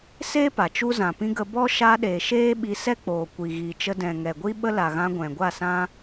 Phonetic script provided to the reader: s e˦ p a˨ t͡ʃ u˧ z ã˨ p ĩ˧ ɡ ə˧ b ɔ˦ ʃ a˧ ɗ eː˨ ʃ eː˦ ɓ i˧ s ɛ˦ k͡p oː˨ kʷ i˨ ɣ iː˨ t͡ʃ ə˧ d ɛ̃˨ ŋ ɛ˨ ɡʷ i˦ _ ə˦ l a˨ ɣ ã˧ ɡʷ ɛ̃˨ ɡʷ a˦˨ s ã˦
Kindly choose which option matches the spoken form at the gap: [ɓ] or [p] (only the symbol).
ɓ